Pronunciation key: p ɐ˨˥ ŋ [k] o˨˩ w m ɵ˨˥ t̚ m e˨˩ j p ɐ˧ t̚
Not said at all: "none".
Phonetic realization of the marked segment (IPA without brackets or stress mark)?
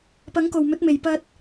k